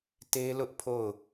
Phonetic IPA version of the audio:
t e˦ l ʊ˦ ʔ pʰ o˦˨ ʊ̯

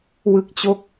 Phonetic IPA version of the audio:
w ɯ˥˩ k̚ t͡ɕ o˥˩ k̚

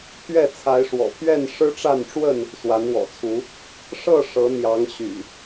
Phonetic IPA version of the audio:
pʰ ɥ ɛ˥˨ t͡sʰ a˨˦ ɪ̯ ʂ w ɔ̰˨˩ pʰ ɥ ɛ˥˨ n ʂ ɻ̩˦ ʈ͡ʂ a˥˨ n ʈ͡ʂ w ə˥˨ n | s w a˨˦ n w ɔ̰˨˩ t͡sʰ u˨˦ | ʂ ɤ˥˨ ʂ ɤ˨˦ n̪ j ɑ˨˦ ŋ ɕ y̰˨˩

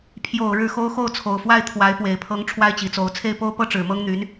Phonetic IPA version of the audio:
pʰ j o˨˩ ʊ̯ ɻ ɻ̩˥˩ x o˥ ʊ̯ x o˥˩ ʊ̯ t͡sʰ o˨˩ ʊ̯ f w a˥˩ ɪ̯ t̪ʰ w a˧˥ ɪ̯ p w e˨˩ ɪ̯ pʰ ɤ˧˥ ŋ ʈ͡ʂʰ w a˥ ɪ̯ t͡ɕ i˨˩ t͡s o˧˥ ʊ̯ t͡sʰ e˥˩ ɪ̯ p o˥ ʊ̯ p ɤ˥ ʈ͡ʂ ɻ̩˨˩ m ɤ˥ ŋ n̪ y˧˥ n

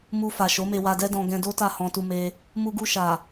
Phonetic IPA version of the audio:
m u˧ f a˨ ʃ o˨˦ m e˧ w a˧ d ɛ˦ d ɔ̃˧ ɡ ɛ̃˧ d o˦ t a˦˨ h ɔ̃˧ t u˧ m e˧ | m u˧ ɡ u˧ ʃ a˨

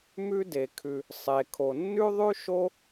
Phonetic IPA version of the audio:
m ʉ˥ d e˨ kʰ ʉ˨ | sˤ e˨ kʰ o˨ nː ʉ˥ ðˤ ʉ˥ ʃ o˥

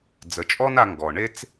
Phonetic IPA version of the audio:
d͡z ə˩˧ t͡ʃʼ ɔ˥ n a˧ ŋ ɡ ɔ˩ ɳ e˥ t͡s

